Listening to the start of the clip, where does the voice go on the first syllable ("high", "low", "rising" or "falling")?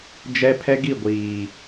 high